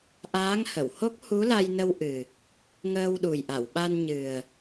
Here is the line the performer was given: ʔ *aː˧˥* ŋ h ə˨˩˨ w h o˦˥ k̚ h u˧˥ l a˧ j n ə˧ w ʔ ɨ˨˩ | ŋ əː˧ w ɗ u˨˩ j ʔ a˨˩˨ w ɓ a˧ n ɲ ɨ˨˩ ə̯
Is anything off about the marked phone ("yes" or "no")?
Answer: no